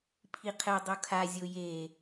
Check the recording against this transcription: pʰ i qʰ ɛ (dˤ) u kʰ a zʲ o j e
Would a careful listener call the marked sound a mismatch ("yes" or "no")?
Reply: no